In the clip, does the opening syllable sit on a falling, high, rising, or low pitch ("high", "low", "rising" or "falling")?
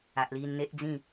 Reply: low